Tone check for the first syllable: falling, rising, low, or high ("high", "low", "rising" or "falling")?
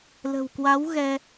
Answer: low